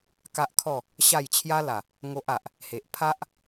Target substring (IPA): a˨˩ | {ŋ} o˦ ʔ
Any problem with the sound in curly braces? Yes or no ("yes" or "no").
no